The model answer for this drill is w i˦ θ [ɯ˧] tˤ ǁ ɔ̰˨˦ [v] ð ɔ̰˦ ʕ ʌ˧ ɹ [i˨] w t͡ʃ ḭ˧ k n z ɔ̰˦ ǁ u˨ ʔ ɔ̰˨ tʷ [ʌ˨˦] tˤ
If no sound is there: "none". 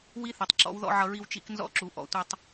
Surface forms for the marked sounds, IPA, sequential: ɯ˨, w, i˧, ʌ˧

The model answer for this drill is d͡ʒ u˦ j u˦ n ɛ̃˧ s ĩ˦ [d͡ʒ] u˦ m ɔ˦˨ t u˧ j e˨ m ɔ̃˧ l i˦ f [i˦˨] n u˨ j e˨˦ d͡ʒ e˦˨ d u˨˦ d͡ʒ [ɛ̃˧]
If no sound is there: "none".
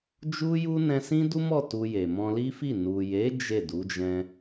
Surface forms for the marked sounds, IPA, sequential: d, i˦˨, ɛ̃˧

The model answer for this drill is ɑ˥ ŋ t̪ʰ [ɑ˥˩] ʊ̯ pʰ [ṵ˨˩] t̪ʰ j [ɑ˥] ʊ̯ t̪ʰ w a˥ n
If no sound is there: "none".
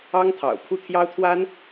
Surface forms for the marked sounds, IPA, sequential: ɑ̰˨˩, u˥˩, ɑ˥

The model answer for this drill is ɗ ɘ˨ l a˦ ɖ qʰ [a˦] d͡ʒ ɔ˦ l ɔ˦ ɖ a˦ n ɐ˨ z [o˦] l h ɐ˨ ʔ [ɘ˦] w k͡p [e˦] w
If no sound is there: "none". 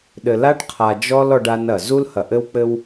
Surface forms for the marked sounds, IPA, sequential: a˨, u˦, ɘ˦, ɘ˦

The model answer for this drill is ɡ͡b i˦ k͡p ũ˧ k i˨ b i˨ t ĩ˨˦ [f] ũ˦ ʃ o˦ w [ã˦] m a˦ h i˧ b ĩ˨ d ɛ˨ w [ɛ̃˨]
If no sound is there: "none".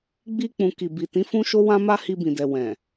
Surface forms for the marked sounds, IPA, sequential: f, ã˦, ɛ̃˨

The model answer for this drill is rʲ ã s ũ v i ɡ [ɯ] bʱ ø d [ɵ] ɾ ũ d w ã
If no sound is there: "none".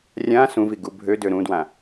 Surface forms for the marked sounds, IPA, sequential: u, ø

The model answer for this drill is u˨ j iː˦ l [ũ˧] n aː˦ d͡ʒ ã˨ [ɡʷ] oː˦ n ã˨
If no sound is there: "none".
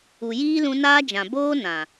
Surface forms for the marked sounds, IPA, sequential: ũ˧, b

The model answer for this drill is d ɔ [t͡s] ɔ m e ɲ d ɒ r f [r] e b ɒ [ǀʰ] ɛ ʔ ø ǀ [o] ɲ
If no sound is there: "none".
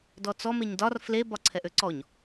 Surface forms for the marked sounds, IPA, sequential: t͡s, l, ǀʰ, ɔ

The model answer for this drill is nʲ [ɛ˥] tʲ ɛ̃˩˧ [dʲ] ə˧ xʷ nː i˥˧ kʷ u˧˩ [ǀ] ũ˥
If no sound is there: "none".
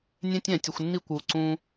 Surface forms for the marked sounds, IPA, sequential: ɛ̃˥, tʲ, ǀ

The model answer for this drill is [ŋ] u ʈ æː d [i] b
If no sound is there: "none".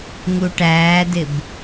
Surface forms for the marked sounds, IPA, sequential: ŋ, ɪ

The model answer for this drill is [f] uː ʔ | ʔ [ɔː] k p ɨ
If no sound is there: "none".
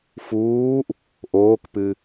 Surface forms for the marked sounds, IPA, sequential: f, oː

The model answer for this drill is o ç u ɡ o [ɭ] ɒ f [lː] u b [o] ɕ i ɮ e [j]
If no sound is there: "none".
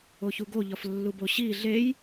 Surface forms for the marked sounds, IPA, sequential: ʎ, lː, o, j

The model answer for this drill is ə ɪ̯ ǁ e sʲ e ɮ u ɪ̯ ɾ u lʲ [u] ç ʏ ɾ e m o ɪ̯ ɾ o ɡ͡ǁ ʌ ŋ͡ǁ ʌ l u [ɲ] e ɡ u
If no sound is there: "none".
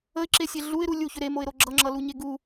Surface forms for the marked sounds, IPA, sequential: u, ɲ

